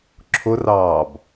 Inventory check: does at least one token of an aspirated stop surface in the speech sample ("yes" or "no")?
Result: yes